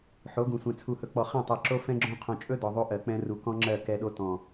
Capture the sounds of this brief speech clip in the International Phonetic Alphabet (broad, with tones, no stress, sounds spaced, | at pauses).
ħ o˨˦ ɡ ũ˨ sʷ ɛ̃˨ t͡sʰ u˨ h ɵ˨ k͡p ɔ˨ χ ɛ̃˦˨ tˤ ɛ˨ ǁ o˦ f ɛ̃˦ ɡ͡ǁ õ˦ qʰ õ˨ t͡ʃʼ ɵ˦ d ɔ˨ ðˤ o˦ ʔ ɜ˨ k͡p ɛ̃˦ r u˨ k ɔ̃˦ ŋ͡ǁ ɜ˦˨ k ɛ˦ ɗ o˦ t ɔ̃˨